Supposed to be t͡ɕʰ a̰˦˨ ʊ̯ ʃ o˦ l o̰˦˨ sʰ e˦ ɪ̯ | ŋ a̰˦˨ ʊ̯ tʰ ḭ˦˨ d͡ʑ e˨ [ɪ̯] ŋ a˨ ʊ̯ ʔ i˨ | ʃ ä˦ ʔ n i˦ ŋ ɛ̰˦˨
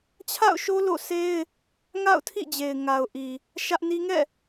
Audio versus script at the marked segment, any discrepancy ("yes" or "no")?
no